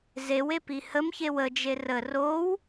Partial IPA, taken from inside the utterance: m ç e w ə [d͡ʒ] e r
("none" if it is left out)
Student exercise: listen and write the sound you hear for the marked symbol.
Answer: d͡ʒ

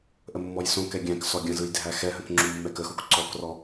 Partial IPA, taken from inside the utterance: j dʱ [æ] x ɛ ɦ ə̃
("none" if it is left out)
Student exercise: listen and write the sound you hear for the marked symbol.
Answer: æ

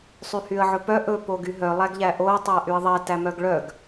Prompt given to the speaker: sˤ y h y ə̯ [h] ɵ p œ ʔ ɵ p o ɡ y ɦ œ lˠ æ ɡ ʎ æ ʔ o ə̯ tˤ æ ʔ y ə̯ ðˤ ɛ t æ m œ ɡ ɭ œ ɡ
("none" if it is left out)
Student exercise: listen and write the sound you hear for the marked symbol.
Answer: ʕ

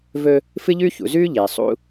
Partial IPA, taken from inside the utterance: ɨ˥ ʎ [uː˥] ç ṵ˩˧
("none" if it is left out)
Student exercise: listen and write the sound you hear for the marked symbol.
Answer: ʉː˥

